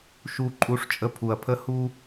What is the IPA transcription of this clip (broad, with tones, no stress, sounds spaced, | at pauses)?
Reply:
ʃ u˧ ǃʼ u˧ ʂ t͡ʃʼ ə˧ pʰ u˨ ɐ̯ pʰ ə˧ h u˧